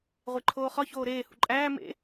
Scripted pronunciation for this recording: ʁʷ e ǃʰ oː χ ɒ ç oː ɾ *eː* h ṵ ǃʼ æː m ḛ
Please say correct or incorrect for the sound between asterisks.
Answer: correct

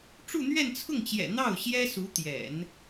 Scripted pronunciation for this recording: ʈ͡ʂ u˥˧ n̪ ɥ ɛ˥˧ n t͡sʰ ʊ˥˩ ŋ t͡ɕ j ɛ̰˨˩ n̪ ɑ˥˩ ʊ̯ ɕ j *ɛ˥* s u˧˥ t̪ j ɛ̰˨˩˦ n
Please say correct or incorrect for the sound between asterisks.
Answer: correct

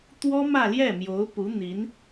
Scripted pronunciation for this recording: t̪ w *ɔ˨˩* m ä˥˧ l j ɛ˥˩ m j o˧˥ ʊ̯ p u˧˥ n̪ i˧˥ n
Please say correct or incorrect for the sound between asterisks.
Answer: incorrect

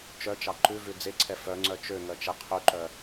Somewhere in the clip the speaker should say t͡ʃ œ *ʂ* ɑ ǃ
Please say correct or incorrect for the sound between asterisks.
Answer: incorrect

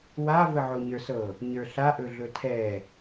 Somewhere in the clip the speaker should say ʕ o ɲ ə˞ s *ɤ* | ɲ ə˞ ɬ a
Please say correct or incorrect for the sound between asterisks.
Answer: correct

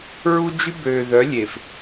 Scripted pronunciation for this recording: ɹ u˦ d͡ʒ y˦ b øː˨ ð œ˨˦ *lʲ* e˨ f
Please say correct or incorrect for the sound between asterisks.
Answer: correct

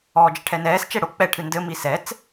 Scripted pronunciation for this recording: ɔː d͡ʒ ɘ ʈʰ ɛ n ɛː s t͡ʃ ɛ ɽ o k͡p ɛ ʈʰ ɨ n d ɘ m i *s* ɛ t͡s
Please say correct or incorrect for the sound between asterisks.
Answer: correct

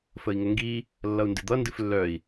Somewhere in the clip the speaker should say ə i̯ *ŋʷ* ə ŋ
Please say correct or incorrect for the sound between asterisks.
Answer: incorrect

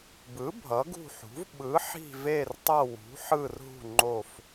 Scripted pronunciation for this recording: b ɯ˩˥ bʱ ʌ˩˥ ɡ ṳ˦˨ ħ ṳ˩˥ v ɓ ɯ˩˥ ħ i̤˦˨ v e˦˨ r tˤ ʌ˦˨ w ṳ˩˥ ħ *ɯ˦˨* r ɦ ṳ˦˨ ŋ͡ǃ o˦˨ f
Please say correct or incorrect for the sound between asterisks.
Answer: correct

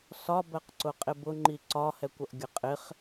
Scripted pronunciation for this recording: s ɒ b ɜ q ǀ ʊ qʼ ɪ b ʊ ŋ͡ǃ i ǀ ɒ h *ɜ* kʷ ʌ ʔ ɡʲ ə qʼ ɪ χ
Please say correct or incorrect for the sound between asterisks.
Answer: incorrect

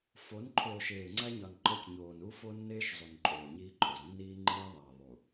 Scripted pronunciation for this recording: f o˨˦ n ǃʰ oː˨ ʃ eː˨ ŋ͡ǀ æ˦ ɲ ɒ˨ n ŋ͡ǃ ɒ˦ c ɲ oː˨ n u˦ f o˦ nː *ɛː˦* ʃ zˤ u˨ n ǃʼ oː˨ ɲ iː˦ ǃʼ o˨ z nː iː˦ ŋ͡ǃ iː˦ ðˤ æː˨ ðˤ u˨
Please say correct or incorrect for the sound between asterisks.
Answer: incorrect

